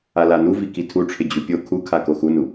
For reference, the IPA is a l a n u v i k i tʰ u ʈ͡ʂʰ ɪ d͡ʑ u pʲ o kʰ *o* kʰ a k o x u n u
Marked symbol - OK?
no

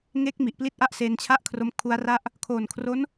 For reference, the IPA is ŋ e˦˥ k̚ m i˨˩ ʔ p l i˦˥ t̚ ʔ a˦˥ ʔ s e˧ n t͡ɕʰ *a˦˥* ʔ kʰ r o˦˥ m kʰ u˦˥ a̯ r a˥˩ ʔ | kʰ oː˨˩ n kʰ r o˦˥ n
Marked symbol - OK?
no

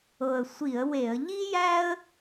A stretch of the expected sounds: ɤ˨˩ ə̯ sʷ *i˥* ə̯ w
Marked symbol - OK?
no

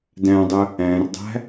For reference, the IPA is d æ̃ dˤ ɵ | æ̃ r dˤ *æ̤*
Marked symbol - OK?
yes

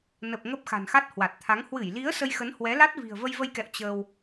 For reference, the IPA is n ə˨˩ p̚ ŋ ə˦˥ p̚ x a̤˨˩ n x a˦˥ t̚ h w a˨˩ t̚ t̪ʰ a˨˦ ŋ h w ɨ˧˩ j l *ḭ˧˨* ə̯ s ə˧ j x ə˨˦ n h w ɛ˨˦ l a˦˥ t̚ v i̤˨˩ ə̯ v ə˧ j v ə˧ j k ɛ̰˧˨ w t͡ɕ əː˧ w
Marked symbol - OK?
no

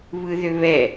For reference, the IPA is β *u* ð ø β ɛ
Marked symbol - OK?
no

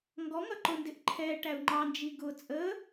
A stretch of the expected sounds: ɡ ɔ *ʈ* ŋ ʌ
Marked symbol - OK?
no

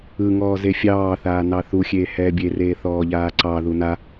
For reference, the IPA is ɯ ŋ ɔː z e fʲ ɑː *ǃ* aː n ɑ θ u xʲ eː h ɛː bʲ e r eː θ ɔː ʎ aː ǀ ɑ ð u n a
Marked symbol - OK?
no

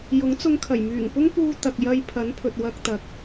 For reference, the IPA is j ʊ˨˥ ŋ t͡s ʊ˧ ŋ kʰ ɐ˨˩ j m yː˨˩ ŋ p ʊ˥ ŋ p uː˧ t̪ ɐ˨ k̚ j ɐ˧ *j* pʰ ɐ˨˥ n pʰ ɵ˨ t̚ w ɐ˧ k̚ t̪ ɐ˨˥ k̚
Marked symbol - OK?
yes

